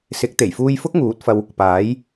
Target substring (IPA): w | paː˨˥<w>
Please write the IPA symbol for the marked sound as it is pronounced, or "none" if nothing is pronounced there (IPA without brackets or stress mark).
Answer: j